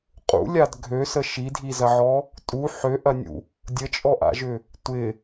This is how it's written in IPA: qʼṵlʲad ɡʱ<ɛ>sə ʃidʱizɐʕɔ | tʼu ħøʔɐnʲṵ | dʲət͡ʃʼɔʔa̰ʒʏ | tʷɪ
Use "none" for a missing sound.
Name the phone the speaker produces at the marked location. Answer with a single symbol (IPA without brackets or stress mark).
ø